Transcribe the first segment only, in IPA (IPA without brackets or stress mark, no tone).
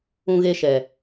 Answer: ũ